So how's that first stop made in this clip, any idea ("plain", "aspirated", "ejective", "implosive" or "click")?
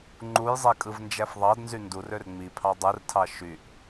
click